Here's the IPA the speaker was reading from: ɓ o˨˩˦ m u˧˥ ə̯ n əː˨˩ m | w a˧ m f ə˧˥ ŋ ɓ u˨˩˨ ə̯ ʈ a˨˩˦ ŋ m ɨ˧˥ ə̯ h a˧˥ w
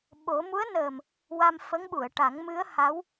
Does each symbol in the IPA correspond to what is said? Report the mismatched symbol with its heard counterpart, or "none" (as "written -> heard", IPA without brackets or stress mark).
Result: none